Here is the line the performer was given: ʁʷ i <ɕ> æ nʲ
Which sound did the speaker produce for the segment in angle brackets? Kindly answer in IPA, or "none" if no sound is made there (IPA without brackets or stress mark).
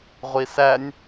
s